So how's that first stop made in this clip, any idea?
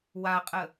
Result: ejective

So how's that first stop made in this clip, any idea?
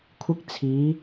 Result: aspirated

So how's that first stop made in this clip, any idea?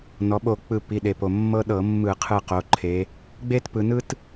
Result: implosive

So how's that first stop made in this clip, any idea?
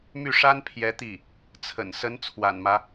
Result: aspirated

